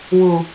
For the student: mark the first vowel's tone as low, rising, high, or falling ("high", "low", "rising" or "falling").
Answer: low